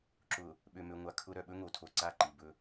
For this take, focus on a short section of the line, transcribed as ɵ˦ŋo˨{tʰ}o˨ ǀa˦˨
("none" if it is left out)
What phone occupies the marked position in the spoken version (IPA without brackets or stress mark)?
tʰ